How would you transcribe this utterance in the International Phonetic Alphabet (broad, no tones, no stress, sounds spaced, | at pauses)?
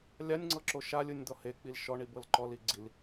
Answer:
lʲ a nʲ ŋ͡ǀ ɤ ǁ o ʃ a lʲ ɯ nʲ d̪ ɔ h e k͡p i l ʃ ɔ ɳ i b ɤ l ǃ ɔ l i ɡ͡ǀ i l